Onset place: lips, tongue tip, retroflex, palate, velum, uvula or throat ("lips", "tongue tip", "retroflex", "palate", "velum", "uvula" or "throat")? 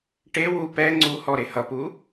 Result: retroflex